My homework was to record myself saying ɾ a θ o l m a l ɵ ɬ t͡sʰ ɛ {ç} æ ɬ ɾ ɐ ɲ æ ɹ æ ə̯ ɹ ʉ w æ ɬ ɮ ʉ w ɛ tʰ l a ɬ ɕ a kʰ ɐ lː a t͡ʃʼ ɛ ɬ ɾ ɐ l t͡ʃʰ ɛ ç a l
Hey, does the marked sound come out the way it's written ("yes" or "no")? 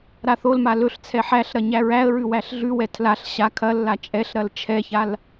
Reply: no